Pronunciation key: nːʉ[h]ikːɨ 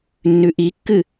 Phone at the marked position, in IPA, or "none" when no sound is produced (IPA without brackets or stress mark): ʔ